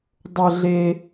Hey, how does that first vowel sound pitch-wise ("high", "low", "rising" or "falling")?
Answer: high